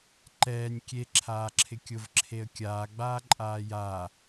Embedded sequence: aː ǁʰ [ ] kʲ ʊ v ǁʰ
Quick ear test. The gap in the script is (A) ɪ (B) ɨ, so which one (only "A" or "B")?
A